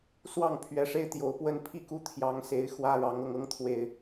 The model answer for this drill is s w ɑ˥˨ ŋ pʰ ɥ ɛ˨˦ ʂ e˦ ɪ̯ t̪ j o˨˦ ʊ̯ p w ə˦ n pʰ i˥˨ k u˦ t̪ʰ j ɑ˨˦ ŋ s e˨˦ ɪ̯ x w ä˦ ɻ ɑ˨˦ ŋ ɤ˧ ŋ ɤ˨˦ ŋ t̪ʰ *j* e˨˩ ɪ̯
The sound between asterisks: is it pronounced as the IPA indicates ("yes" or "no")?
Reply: no